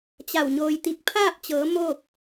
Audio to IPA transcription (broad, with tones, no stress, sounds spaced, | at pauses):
t͡ɕ a˧˩ w ɲ oː˧ j t̪ i˧˥ k̚ pʰ aː˥˨ p̚ t͡ɕ ɤː˩˧ m oː˥˨ k̚